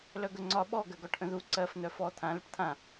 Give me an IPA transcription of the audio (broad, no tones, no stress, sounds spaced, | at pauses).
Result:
l œ ɡ ə ŋ͡ǀ ɒ ɓ ɔ ɡ ɜ ɡ ɔ ʈ ʔ ə̃ ð u ǀ ɜ f n̪ œ f ɔ t̪ʰ ã l ə ʈ t̪ʰ ã